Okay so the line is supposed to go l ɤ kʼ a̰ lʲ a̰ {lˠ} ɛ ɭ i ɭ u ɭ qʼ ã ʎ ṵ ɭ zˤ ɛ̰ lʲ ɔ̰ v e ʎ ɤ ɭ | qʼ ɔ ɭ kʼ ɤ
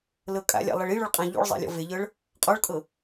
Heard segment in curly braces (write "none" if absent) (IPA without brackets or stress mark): lˠ